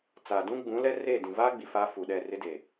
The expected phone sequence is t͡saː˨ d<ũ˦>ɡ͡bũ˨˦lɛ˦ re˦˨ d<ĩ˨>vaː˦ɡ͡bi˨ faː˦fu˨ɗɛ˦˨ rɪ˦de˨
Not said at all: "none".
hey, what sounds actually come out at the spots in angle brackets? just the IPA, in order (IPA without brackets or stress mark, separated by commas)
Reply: ũ˦, ĩ˨